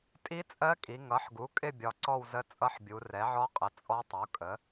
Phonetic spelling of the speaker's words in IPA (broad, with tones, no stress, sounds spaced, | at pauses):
tʼ i˦˥ t͡sʼ ɜ˦˥ kʼ i˩˧ ŋ ʌ˩˥ ħ ɡ u˩˥ kʼ ɪ˥˧ bʲ ɒ˩˧ ǀ ɔ˥˧ w z ə˦˥ t͡sʼ ʌ˦˥ ħ bʲ u˩˧ r ɛ˩˥ ʕ ɔ˦˥ qʼ ə˩˥ t͡sʼ ɔ˦˥ tˤ u˩˥ kʼ ə˩˥